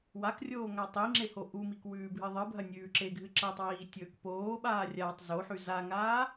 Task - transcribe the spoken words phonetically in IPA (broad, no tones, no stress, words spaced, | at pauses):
wakrʲoː ŋatˤiŋ͡ǁe hoʔumik wʉːbʱɨðˤɨbʱɐ nʲʉːǁeɡʱɨ ǁɐtˤwiː tʲɵk poːɓaː rʲatˤ zoħʉ zaŋaː